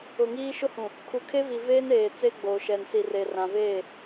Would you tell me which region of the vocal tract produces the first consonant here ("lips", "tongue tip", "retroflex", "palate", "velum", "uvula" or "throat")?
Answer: velum